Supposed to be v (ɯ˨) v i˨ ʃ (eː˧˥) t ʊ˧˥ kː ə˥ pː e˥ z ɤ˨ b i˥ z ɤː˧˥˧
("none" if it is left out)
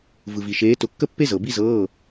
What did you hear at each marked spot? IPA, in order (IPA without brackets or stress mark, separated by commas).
ɯ˨, eː˧˥